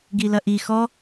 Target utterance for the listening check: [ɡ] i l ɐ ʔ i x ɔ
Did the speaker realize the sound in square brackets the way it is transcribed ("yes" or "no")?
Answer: yes